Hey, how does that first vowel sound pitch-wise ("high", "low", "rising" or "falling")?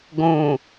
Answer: low